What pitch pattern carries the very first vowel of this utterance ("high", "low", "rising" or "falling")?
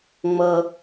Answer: low